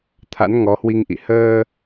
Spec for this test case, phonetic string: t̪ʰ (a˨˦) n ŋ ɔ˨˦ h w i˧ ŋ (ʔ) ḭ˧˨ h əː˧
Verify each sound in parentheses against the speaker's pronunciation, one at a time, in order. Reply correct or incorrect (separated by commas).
incorrect, correct